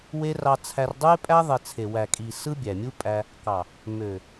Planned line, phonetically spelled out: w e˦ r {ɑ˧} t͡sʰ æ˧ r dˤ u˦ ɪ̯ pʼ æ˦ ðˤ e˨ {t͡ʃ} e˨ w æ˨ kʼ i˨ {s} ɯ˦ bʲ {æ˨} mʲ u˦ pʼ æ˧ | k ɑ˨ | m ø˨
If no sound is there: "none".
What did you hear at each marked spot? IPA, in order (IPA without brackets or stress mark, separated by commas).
ɑ˧, t͡sʰ, s, æ˨